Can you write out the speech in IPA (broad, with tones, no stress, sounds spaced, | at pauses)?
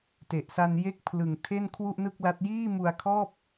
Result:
t e˨˩ ʔ s a˧ n j e˥˩ k̚ pʰ l ɯ˨˩ ŋ tʰ e˥˩ n kʰ w u˥˩ ʔ n ɯ˥˩ k̚ l a˦˥ t̚ j iː˥˩ m u˧ a̯ kʰ ɔː˥˩ p̚